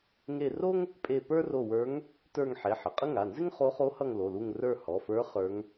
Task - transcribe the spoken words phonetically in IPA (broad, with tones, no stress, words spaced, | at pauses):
ŋe˦˨ro˥ŋ | pʼe˦˨ pə˞˥ro˦˨wə˞˧˥ŋ | tə˞˦˨ŋ ħe˩˧˩ ħə˩˧˩qʼə˥ ŋa˩˧˩nzɪ˥ŋχo˧˥ χo˧˥hʌ˦˨ŋ lo˩˧˩lu˦˨ŋ rə˞˦˨hɔ˩˧˩fə˞˧˥ χə˞˧˥ŋ